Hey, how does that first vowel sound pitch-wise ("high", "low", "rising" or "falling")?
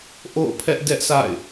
falling